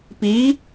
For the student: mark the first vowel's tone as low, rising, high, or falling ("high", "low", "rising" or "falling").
rising